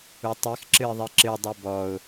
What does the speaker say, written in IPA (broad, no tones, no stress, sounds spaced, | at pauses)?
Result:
u tˤ i x ǁ ɨ ɪ̯ ðˤ i ǁ ɨ dˤ u b ɔ ʊ̯